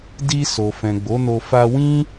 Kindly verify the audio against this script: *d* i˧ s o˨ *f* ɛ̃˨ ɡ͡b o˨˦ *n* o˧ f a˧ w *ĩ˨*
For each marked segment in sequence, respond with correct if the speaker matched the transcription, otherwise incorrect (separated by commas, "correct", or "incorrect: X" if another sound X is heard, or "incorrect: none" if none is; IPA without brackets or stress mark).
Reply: correct, correct, correct, incorrect: ĩ˦